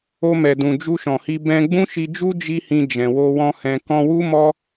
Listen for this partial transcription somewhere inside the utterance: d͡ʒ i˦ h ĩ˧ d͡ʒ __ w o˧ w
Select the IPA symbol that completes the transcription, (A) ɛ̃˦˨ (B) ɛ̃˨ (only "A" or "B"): B